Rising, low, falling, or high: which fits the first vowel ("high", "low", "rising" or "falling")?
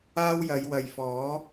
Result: high